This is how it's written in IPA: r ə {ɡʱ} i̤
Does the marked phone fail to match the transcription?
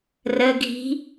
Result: no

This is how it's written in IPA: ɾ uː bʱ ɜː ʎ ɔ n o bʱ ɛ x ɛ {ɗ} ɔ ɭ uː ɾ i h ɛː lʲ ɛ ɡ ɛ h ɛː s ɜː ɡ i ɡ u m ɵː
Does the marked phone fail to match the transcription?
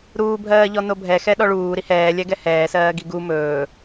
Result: no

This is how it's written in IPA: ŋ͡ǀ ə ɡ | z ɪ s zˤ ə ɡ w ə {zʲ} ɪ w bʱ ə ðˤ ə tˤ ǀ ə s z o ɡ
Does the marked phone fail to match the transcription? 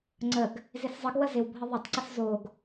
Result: yes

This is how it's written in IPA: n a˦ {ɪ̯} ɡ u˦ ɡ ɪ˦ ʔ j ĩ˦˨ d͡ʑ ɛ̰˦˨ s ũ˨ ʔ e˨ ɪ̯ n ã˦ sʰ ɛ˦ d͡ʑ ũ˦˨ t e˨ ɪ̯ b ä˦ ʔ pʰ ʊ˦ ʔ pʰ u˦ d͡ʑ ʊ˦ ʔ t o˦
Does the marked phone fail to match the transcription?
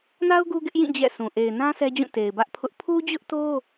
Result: yes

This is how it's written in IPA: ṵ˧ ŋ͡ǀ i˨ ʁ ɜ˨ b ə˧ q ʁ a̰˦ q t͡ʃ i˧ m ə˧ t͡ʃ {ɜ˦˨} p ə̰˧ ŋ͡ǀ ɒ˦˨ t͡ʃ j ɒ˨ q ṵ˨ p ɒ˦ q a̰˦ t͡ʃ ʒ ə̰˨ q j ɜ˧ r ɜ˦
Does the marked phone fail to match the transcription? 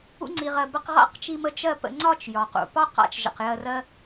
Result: no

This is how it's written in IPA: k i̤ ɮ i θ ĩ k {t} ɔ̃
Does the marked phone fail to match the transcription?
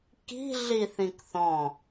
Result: yes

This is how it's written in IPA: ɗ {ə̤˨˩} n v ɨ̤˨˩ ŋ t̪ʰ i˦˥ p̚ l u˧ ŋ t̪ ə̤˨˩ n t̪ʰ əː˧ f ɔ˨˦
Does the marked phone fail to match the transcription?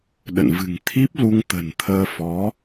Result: yes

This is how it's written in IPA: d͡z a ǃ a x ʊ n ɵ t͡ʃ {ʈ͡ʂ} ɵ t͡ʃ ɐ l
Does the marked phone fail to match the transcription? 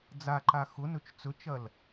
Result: yes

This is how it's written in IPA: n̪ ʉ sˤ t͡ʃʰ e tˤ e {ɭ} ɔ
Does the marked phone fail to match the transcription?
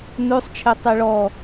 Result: no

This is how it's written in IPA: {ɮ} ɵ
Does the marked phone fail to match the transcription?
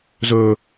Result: yes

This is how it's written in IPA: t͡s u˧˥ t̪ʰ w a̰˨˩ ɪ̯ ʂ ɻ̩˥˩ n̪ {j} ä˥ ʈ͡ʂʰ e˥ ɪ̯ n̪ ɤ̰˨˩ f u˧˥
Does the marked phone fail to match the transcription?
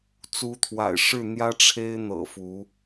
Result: no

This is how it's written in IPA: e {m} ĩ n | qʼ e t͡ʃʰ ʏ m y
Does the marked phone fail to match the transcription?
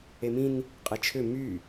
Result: no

